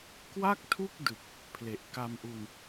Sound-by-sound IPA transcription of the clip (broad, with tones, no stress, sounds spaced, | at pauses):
k w a˥˩ k̚ tʰ u˥˩ k̚ d ɯ˨˩ k̚ | pʰ l e˨˩ ʔ k a˧ m ʔ u˧ n